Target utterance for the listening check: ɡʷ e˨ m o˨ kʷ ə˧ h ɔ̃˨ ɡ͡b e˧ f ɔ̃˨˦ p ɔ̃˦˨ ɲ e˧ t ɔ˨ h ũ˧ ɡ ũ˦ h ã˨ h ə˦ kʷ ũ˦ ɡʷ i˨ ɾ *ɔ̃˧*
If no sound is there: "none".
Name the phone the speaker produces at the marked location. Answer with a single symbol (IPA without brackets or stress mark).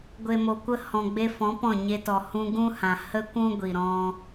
ɔ̃˧